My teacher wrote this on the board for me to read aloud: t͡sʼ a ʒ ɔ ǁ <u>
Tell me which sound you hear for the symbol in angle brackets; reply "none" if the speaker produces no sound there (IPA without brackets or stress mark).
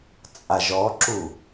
u